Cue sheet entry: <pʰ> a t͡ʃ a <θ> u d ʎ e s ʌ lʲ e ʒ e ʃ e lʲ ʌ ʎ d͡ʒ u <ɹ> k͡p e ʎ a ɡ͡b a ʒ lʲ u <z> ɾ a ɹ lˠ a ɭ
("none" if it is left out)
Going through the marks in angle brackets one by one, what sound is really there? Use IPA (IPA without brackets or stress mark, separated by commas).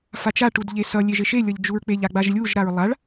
f, ʈ, ɹ, ʒ